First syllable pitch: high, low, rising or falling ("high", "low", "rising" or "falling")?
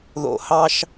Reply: low